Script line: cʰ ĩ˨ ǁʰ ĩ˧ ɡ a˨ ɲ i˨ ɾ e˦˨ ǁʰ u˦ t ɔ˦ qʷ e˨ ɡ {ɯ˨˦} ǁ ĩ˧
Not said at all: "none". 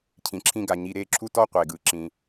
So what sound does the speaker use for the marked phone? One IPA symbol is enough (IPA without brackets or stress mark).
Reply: ɯ˨˦